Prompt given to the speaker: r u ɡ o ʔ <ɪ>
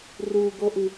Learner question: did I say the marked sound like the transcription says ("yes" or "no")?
no